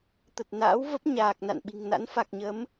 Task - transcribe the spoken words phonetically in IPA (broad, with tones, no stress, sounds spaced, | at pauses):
t̪ ə˨˩ t̚ n a̰ː˧˥ w v ə˦˥ p̚ ɲ aː˨˩ k̚ n a̰˧˨ n ɓ i̤˨˩ ŋ n a̰˧˥ n f a˨˩ k̚ ɲ ə˨˦ m